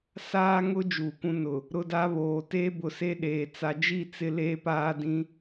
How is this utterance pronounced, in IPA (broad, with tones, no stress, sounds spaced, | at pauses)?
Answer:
s aː˦ ŋ ʊ˦ d͡ʒ uː˨ kʷ ũ˦ n ʊ˨ | ɾ ʊ˦ d a˦ β oː˨ t eː˦ b ʊ˨ s e˦ ɗ eː˨ t͡s a˨ d͡ʒ i˦˨ t͡s ɪ˦ l eː˦ p aː˦ d ĩ˦